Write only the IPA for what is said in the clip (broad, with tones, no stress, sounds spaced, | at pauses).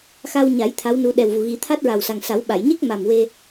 x a˧ w ɲ a˨˩˦ j t̪ʰ a˧˥ w n u˧ ɗ ɛ˨˩ w v u˨˩ ɣ i˨˩˦ t̪ʰ a˦˥ t̚ ɹ a˨˩ w s a˨˩ ŋ s a˨˩˦ w ɓ a˨˩˨ j ɲ e˦˥ k̚ m a˨˩ m w e˧